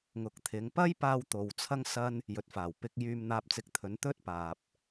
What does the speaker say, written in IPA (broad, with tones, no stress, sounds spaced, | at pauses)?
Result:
ŋ ʊ˨˥ k̚ t̪ʰ ɪ˨˧ ŋ p ɐ˥ j p aː˧ w t̪ o˨ w t͡sʰ ɐ˥ ŋ s ɐ˥ n | j ɵ˨ t̚ f aː˨˩ w p ɪ˧ k̚ j yː˧ m n̪ aː˧ p̚ t͡s ɪ˧ k̚ t̪ʰ ɵ˨˥ n t̪ ɵ˥ t̚ p aː˨ p̚